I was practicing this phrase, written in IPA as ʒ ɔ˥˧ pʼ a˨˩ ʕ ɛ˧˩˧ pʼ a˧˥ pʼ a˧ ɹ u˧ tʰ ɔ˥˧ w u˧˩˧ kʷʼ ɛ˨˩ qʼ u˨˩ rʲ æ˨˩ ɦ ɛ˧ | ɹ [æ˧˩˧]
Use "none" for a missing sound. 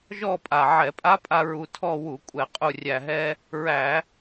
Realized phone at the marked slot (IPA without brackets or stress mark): æ˧˩˧